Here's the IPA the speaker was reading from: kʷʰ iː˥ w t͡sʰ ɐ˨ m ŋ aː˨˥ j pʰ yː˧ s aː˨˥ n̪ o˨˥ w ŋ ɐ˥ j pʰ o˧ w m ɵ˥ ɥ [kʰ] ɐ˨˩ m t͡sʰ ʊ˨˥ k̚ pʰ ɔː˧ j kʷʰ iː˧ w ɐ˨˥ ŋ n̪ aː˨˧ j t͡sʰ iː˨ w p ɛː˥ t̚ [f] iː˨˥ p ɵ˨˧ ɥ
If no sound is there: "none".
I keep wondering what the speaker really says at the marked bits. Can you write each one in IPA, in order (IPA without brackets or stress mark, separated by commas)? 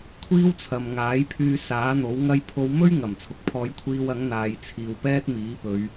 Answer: ŋ, m